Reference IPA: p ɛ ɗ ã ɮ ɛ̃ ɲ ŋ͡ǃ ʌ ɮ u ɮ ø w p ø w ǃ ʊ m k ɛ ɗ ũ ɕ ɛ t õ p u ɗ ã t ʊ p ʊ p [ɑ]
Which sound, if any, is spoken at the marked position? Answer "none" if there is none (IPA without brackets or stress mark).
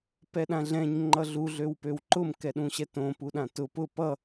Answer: ʌ